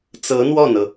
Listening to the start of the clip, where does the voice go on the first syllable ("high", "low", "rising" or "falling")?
rising